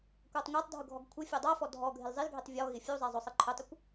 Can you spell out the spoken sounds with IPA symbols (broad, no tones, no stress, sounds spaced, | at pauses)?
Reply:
kʷ a tˤ ŋʷ a tˤ dʱ ʊ ɡʱ ɔ ɡ kʷʰ ɪ fʲ e dˤ a f ɔ dʱ ɔ ɡʱ ɪ l zˤ i l ɡʱ i tˤ vʲ ɔ ɣ ɪ fʲ u zˤ ɛ zˤ ʊ sˤ i ǃʰ ʊ tˤ ʊ kʷ